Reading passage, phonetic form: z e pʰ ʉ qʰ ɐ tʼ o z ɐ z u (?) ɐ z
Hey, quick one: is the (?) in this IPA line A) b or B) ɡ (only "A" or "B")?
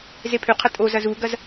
B